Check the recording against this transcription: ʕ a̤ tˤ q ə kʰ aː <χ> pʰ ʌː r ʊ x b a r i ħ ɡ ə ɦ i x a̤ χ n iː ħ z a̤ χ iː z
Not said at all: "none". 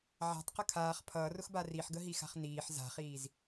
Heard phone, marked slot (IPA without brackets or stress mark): χ